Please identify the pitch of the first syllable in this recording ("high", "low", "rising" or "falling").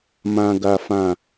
low